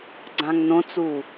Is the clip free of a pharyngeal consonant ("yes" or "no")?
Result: yes